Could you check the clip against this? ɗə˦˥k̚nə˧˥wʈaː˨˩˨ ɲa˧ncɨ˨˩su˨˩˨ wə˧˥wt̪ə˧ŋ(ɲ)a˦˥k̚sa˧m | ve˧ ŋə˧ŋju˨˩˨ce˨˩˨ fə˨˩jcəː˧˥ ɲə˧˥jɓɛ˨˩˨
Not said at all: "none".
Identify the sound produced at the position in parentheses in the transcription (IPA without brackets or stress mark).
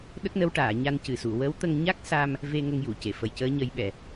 ɲ